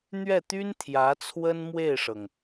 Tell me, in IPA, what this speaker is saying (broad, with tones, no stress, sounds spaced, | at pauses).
n̪ ɥ ɛ˥˩ t̪ y˥ n t̪ʰ j ä˧˥ t͡sʰ w ə˥ n m w e˥˩ ɪ̯ ʂ ɤ˩ ŋ